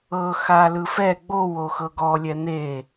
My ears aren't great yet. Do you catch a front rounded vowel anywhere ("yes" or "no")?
no